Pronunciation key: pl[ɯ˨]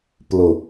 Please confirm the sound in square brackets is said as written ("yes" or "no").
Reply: no